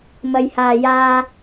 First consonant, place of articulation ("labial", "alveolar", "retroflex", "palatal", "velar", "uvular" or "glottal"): labial